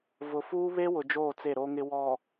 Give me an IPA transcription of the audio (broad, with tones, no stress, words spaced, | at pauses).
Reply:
vʊ˨fuː˦ βe˦wʊ˨ d͡ʒoː˦˨t͡se˦˨ɾo˦ŋɪ˦ wɔ˨